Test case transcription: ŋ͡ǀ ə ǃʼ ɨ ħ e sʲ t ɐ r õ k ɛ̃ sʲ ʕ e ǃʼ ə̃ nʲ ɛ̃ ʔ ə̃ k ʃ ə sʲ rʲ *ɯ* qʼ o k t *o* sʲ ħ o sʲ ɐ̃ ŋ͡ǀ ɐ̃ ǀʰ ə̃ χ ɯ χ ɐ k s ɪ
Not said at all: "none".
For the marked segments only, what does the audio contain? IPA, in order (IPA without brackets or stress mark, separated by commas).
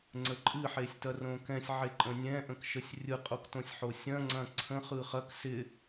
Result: ɯ, õ